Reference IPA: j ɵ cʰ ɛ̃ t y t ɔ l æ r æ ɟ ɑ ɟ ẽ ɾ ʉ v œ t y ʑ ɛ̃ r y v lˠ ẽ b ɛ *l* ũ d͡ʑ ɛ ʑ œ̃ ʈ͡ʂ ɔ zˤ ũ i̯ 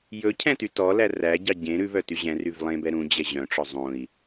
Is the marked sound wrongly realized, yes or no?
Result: yes